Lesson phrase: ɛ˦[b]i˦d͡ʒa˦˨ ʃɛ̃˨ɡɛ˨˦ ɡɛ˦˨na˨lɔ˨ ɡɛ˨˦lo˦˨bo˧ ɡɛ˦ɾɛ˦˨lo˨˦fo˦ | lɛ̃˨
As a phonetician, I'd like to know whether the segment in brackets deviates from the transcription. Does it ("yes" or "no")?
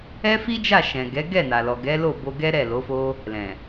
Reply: yes